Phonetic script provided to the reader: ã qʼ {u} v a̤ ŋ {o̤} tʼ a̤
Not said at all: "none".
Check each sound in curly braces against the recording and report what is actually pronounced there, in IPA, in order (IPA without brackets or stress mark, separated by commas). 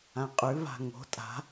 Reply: ʉ, o̤